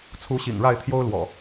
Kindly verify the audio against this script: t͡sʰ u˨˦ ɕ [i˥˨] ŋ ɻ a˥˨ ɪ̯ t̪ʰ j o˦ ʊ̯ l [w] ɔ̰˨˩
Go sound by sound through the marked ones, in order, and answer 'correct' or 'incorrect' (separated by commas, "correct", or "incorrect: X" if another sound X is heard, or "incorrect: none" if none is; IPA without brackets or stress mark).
incorrect: ḭ˨˩, correct